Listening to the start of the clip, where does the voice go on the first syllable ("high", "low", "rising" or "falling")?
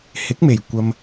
rising